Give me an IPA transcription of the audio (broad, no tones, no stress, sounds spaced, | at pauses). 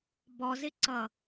b ɔ z ɪ ǀ ʌ